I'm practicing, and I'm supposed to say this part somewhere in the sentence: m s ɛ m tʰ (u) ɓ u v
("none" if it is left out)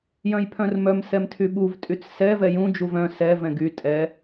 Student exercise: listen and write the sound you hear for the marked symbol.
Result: y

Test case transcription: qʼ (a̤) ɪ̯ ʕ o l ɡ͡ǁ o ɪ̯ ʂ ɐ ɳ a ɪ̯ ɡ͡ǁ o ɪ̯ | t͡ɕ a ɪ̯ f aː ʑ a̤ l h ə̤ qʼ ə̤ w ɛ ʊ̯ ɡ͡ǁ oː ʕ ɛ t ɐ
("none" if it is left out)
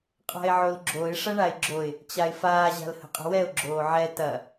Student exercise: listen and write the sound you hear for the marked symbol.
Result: a̤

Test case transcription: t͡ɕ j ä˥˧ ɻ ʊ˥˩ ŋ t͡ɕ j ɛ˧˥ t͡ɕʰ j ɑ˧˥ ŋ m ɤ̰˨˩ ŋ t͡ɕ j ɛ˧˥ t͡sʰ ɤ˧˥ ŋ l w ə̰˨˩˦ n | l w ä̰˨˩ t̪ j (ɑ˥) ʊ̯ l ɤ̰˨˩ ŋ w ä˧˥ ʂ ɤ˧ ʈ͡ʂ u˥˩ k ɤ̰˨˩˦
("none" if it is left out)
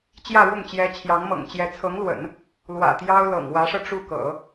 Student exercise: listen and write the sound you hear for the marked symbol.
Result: ɑ˥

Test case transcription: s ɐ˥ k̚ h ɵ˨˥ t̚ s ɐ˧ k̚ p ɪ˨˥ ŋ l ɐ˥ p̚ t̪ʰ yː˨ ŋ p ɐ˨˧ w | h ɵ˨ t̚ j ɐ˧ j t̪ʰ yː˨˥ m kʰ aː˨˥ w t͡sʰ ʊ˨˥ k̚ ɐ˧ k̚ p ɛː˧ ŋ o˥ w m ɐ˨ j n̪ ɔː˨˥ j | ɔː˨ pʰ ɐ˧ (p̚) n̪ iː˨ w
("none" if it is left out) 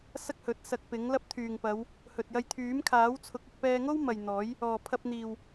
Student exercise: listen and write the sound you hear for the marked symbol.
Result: p̚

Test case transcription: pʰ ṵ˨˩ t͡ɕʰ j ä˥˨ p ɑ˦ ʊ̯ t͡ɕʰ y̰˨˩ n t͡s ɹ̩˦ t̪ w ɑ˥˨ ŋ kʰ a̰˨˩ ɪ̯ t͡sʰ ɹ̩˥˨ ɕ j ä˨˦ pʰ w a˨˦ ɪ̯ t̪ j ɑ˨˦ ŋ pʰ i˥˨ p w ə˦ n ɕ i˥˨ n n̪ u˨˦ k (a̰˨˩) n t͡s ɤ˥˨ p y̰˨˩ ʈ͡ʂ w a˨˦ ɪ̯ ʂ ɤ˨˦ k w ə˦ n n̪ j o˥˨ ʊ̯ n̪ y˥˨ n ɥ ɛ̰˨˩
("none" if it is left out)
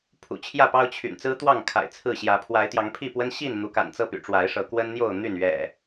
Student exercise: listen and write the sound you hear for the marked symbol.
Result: a̰˨˩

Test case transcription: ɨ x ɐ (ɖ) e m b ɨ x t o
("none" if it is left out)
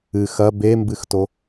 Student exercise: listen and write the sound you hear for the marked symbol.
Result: b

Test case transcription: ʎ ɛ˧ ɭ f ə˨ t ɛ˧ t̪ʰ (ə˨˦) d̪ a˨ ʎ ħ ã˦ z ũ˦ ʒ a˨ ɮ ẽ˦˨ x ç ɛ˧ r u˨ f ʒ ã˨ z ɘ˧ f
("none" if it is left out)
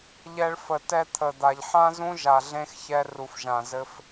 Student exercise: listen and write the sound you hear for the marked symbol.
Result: ə˨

